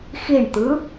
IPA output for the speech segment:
xiɳt̪ɯ

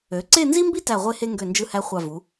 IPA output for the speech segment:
ø˩˧ǀe˥˧nzi˥mbi˥ tæ˧˩ʁʷe˧he˧ ŋɡø˧˩nd͡ʒɯ˧hæ˧ χʷɑ˧˩vu˩˧

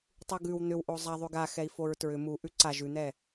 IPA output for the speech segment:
tˤuɡʉw n̪ʏw ʔozˤa ðˤʉɡa xɛi̯foɹtɹʏ mu ʔʉǀa ʒʉn̪ɛ

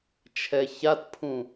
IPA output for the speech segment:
t͡ʃʰɛçatpʰũ

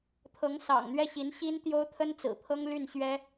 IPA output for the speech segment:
t̪ʰɤ˧˥ŋ sɑ̰˨˩ŋ n̪ɥɛ˥˩ɕi˧˥nɕi˥n t̪jo˥ʊ̯ t̪ʰə˥nt͡sɹ̩˨˩pʰɤ˥ŋ ly˥˩n ɕɥɛ˥

